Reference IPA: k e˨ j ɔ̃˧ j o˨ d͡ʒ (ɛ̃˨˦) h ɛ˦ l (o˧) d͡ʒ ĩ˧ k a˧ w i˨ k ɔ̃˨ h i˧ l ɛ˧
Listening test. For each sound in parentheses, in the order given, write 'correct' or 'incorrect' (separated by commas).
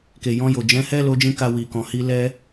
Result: correct, correct